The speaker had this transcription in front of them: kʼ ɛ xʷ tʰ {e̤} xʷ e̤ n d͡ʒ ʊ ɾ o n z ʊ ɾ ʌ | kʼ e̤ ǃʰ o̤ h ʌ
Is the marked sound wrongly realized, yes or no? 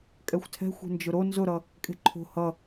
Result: yes